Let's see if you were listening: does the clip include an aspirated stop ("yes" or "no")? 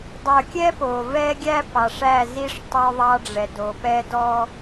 no